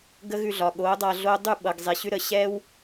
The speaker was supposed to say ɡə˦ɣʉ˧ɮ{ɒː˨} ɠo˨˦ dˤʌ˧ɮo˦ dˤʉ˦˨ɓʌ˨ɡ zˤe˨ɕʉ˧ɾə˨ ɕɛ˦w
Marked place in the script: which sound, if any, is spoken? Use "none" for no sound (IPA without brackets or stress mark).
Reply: ɒ˨